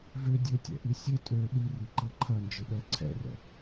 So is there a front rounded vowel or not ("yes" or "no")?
yes